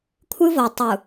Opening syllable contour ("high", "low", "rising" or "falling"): high